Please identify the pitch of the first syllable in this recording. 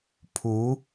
rising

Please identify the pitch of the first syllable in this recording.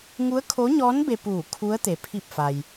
rising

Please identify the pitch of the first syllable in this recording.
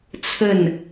falling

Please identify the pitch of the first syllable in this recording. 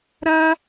high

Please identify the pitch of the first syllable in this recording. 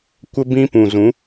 high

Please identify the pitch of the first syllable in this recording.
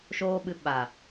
high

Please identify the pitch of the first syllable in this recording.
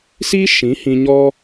high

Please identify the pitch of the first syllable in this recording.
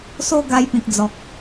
falling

